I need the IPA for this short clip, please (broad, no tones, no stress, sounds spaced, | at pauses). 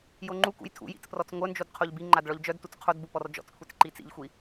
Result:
j o ŋ͡ǃ u k ṵ j tʰ ṵ j ḭ t͡s p r ɔ t͡s ŋʷ œ n d͡ʒ o d qʰ o ʎ b i ŋ͡ǃ a d ɭ ɔ ʎ d͡ʒ œ d t u t͡s qʰ o d b u p ɔ r d͡ʒ ɔ̰ t͡s kʷʰ i t͡s ǃ i t͡s ḭ ʎ xʷ i